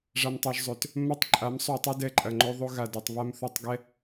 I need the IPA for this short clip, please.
ʐ a˧ m tˤ ø˧ ʒ zˤ ø˨ t | mː ɐ˦ tˤ ǃʼ a˨˦ m sˤ y˨ tˤ ø˦ d ɛ˧ ǃʼ ɐ˨ ŋ͡ǃ o˧ ðˤ o˧ ɣ a˨ d ɛ˨ tˤ β a˧ m θ o˧ tˤ ɡ ɛ˦

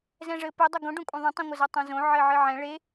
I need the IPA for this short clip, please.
z ɛ̃ ʐ ɘ p e dˤ ɐ ɡ õ ɖ õ kʷʼ ẽ ðˤ ɛ̃ tˤ õ ŋʷ ɐ z o tˤ õ z õ ʕ ɘ ʕ ɨ ʕ ɛ̃ ɭ e

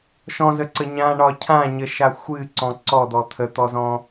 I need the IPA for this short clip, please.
ʃ ɔ̃ z ə ǀ ə ɲ ã ɳ ɒ cʰ ã ɲ ə ʃ a xʷ ɨ ǀ ɔ̃ ǀ ɔ d̪ ɔ t̪ʰ ə t̪ ɔ z ɔ̃

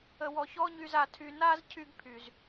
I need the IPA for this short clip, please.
ə˨ w ɔ˨ ç ɔ˦ ɲ y˧ z a˧ tʰ y˧ n a˦ z cʰ y˦ ɡ pʰ y˨ z

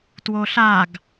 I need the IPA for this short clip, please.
t w o ɬ a ɡ

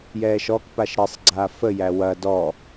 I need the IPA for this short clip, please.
j ɛː ʃ ɔ k p a ʃ ɾ ɘ sˤ ɡ͡ǀ aː f ə j æ w ɐ d ɔ

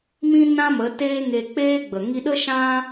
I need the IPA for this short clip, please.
m ĩ˦ n ã˦ m ə˨˦ t eː˦ ŋ e˧ k͡p eː˦ ɡ͡b ə˨ ŋ i˧ ɗ ə˦ ʃ ã˦

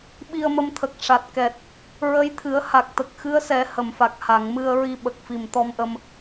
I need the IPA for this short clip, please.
ɓ i˧ ə̯ m ə˧ m t̪ʰ ə˨˩ k̚ ʂ a˨˩ t̚ k ɛ˨˩ t̚ | ɹ ə˧˥ j t̪ʰ ɨ˨˩˦ ə̯ h a˨˩ k̚ t̪ ə˨˩ k̚ x ɨ˧˥ ə̯ s ɛ˨˩˦ h ə˨˩˨ m f a˨˩ k̚ h a˨˩˨ ŋ m ɨ˧ ə̯ ɹ i˧ ɓ ə˨˩ k̚ f i˨˩ m t̪ ɔ˧ m ʔ ə˧ m

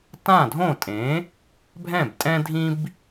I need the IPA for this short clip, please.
t ã˥˩ dʱ õ˥˩ tʼ ẽ˩˥ | bʱ ɛ̃˥˩ b tʼ ɛ̃˥ dʱ ĩ˥ b

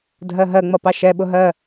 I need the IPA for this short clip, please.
dʱ ɜ ɦ ɜ ŋ͡m ʌ p ɑ ʃ ɛ ɓ ʊ ɦ ɜ

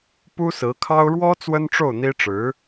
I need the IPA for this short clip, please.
p u˥ s ɹ̩˧˥ kʰ ɑ˥ ʊ̯ ɻ w ɔ˥ t͡s w ə˥ n ʈ͡ʂ o˥˩ ʊ̯ n̪ i˥ ʈ͡ʂ ɻ̩˧˥

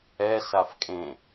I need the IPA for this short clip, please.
ɛ s a f kʼ ẽ

